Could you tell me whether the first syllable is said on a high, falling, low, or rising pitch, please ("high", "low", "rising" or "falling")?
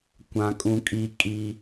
high